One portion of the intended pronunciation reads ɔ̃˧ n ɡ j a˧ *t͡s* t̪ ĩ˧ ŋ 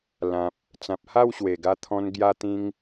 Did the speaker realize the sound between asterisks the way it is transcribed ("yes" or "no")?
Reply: no